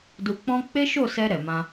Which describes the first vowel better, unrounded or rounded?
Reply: rounded